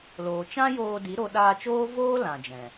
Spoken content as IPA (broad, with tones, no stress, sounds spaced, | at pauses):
l oː˨ t͡ʃ ã˦ j oː˧ d i˨˦ ɾ o˧ ɗ aː˧ t͡ʃ oː˦ v oː˦ l ã˨ d͡ʒ ɛ̃˨